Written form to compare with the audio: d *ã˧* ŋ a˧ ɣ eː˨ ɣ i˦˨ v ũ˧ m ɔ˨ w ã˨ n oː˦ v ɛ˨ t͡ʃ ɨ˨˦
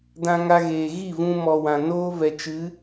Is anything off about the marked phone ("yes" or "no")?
no